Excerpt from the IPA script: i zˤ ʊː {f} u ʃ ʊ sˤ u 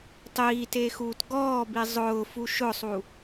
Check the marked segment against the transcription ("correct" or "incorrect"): correct